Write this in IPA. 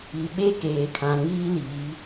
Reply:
i˨ɓe˦keː˨kʰã˨ ŋiː˦liː˨˦

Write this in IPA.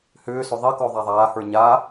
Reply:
hʏːsʏ ðˤe kɔðˤaðˤaːhə˞ ɲa

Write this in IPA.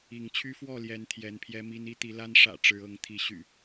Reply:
i˨˦ŋ t͡ɕʰy˦fwɔ˥˨ljɛ˨˦n t̪ʰjɛ˨˦npʰjɛ˦mi˦n i˦t̪i˨˦la˦n ʂä̰˨˩ ʈ͡ʂɻ̩˨˦ɤ˨˦ŋ t̪ʰi˨˦ɕy̰˨˩

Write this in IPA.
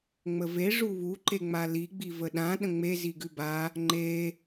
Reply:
ŋ͡məve ʐuβu ǃeŋ͡mali ɡ͡bivəɗã ɗə̃ŋ͡me ziɡʉba | ŋ͡ǃe

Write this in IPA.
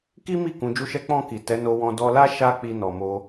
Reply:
ki˦mi˦˨ kũ˨˦d͡ʒu˦ʃɛ˦ k͡pɔ̃˦˨ki˨ tɛ˨˦ no˧wɔ̃˧ dɔ˧la˦ ʃa˦ k͡pi˧nɔ˨mo˧

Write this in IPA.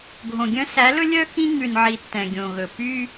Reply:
ɡʱõ˨ɡʲœ̃˦ sæ˨˦lɵ˦lʲœ˦ xĩ˦ŋʉ˨nʕi˨ tːɛ̃˨ɡʲõ˨ɣɵ˨ py˦

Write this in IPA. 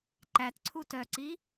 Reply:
ǃætǀʰu tœǀi

